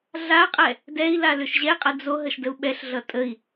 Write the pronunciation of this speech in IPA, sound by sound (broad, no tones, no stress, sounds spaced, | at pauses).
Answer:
ɮ a qʼ ɛ | d ɛ i̯ l a l ʏ ʃ ʑ ɛ qʼ ɘ d͡z o ɦ ə ʃ d ə u̯ ɓ ɛ ɬ ɮ ʌ tʼ ə i̯